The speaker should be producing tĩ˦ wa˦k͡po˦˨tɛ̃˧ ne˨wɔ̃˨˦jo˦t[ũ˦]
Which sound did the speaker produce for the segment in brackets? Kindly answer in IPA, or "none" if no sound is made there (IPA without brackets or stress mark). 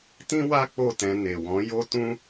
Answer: ũ˦